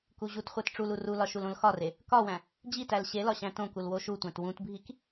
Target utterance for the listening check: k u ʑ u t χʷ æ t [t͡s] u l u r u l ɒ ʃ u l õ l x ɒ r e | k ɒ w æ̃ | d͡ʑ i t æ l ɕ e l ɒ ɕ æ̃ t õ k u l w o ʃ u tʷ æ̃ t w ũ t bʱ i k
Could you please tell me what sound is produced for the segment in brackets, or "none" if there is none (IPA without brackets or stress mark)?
ʈ͡ʂ